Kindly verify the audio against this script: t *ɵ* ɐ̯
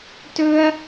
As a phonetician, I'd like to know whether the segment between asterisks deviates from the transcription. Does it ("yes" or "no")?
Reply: no